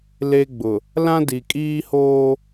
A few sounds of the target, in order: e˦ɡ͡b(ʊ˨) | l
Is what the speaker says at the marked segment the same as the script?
yes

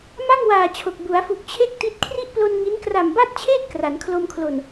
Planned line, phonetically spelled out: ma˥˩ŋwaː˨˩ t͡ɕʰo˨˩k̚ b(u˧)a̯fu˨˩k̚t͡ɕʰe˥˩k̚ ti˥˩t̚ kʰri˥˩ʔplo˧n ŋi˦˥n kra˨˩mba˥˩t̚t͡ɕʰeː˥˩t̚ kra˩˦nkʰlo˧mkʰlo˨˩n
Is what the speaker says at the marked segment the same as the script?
no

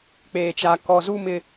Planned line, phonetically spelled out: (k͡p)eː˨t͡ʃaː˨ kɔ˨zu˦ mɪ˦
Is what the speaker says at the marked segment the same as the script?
yes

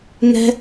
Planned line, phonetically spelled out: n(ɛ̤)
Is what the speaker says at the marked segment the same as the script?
yes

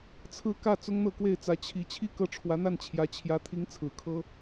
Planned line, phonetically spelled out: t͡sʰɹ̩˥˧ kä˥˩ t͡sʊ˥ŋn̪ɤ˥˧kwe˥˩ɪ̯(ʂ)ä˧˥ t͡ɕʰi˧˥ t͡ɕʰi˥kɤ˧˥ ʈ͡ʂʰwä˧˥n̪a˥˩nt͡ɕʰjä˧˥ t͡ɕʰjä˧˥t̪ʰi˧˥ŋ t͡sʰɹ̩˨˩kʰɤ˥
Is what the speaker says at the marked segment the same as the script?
no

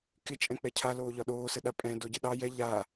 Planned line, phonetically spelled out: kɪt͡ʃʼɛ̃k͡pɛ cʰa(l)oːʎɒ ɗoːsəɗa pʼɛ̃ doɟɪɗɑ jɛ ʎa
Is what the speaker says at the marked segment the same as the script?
yes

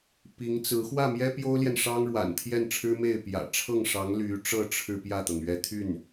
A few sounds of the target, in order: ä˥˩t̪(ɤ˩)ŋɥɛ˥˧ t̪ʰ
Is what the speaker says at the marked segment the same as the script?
yes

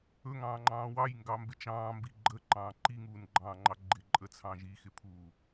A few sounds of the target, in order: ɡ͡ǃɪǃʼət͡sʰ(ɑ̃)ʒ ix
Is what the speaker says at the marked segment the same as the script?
yes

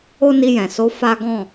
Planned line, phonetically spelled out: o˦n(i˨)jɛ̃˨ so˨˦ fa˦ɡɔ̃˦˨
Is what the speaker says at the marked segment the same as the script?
no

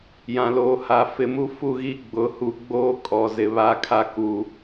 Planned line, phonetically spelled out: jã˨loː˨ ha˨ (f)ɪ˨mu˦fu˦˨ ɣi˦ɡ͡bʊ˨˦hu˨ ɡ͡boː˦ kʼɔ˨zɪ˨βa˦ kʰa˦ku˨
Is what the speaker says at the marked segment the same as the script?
yes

